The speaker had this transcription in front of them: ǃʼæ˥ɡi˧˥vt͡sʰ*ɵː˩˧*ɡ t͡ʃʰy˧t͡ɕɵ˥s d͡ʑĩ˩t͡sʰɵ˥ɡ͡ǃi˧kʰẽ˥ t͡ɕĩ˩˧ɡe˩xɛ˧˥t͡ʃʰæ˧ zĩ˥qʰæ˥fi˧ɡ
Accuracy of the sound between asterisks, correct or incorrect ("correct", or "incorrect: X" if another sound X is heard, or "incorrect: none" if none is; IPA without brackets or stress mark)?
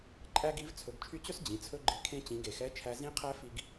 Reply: incorrect: ɵ˩˧